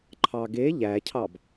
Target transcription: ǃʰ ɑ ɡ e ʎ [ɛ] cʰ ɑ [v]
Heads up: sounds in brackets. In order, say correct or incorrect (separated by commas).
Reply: incorrect, incorrect